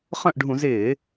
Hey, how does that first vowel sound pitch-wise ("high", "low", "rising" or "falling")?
falling